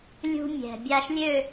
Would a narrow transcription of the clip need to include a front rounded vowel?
yes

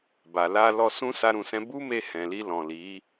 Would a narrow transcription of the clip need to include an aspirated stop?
no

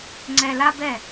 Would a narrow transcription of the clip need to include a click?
yes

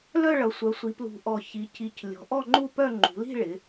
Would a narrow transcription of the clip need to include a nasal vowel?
no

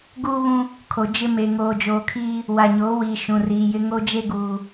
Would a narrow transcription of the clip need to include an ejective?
no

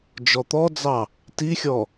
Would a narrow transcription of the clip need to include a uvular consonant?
no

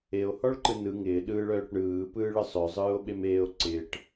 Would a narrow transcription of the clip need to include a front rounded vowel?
yes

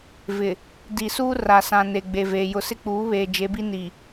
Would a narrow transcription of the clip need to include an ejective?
no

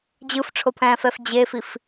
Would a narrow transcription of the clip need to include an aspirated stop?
yes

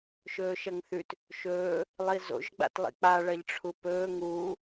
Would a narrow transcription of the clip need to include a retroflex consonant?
yes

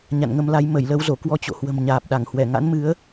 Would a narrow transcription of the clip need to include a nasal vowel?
no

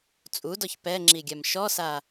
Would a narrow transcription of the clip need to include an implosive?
no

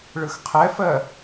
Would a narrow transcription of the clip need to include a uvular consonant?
yes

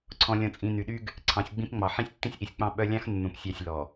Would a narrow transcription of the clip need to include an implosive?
yes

